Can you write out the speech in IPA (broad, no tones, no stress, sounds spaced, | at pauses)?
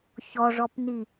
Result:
ç ɔ ʐ ɔ p n i